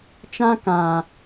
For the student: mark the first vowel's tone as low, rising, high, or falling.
high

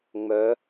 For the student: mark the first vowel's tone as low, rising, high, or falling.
rising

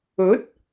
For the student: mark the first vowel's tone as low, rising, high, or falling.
rising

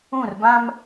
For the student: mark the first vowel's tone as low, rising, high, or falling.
falling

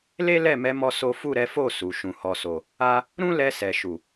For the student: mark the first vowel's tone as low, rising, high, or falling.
high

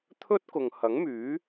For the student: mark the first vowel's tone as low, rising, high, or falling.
high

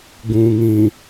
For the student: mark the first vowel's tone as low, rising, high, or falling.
low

